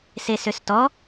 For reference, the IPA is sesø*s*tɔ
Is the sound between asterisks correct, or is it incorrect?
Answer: correct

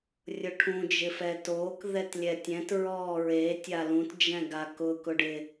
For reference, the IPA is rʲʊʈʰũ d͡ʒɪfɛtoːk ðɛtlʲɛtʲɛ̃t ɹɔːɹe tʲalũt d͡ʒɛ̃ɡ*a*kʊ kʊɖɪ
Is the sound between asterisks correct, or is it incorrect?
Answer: correct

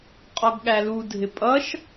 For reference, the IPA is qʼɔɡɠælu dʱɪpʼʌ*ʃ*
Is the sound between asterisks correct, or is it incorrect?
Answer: correct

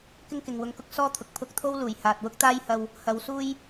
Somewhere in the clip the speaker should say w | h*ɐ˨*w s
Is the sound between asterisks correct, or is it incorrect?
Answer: incorrect: ɐ˨˧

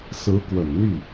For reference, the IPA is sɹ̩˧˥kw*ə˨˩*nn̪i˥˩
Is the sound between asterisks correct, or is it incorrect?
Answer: correct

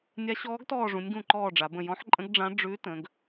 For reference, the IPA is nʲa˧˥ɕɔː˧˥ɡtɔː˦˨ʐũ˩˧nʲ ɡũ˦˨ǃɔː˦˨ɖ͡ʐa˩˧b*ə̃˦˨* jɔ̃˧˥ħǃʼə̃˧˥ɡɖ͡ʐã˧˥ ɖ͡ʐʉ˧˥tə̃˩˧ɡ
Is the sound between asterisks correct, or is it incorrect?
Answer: correct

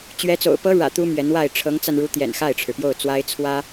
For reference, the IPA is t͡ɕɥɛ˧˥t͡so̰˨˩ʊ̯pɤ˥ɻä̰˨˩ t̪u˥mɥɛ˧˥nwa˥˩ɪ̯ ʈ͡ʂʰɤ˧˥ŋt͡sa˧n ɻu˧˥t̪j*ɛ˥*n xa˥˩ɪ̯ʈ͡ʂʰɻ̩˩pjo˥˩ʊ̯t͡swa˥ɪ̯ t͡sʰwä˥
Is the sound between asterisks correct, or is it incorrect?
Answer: incorrect: ɛ̰˨˩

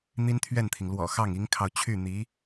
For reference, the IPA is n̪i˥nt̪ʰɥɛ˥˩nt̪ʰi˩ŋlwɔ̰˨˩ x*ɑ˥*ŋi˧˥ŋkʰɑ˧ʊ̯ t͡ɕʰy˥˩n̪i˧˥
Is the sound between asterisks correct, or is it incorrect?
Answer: incorrect: ɑ˥˩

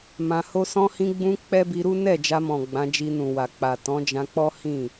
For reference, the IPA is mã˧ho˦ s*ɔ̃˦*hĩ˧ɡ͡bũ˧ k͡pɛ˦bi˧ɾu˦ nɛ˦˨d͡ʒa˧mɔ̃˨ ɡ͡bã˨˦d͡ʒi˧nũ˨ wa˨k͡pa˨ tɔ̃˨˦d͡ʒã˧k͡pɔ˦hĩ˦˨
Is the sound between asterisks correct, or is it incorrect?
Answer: incorrect: ɔ̃˧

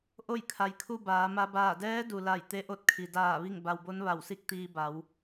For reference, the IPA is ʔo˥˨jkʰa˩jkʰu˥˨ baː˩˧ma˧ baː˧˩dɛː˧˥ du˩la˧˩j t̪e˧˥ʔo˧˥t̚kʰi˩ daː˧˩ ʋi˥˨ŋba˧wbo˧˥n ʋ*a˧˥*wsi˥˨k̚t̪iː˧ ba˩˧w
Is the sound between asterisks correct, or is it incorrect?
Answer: incorrect: a˧˩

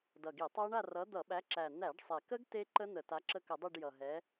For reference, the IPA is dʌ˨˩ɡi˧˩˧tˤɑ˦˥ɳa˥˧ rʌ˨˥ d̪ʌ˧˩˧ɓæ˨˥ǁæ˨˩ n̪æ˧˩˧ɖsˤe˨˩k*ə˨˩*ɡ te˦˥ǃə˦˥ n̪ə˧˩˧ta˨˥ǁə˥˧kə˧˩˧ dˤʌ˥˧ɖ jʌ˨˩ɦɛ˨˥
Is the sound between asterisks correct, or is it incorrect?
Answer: incorrect: ə˦˥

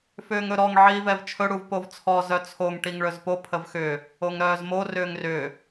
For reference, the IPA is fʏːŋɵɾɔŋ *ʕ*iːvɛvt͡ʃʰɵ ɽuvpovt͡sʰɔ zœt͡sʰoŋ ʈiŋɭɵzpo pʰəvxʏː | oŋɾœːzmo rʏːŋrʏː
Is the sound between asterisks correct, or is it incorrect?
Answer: correct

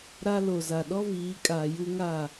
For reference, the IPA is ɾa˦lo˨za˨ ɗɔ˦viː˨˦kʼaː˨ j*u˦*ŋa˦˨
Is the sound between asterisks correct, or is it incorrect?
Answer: correct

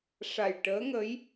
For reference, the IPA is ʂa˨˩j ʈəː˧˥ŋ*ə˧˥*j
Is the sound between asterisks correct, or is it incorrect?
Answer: correct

